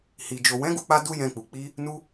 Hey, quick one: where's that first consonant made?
throat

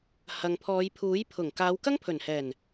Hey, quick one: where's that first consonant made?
throat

